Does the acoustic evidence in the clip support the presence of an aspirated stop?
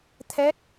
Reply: yes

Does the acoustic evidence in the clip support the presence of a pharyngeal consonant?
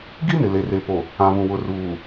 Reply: no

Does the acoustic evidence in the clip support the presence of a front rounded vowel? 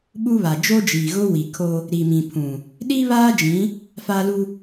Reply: no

